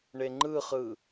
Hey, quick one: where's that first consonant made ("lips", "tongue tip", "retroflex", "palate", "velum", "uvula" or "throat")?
retroflex